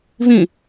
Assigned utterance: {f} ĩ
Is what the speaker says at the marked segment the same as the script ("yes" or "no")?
no